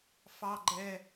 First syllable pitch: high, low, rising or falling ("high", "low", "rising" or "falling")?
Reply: high